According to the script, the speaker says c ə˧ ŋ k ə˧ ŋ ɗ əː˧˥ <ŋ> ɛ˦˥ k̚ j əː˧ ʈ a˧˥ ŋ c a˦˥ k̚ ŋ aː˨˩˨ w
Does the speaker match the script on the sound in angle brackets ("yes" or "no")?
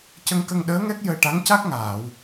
yes